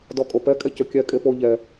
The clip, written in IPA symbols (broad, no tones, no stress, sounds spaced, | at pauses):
d ɔ kʼ o p ɛ kʼ ɛ c ø kʲ ɛ kʼ e p o ʎ ɛ